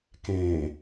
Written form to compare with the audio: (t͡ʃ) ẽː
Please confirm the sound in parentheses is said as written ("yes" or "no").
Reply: no